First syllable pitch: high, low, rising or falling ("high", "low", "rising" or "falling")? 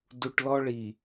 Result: low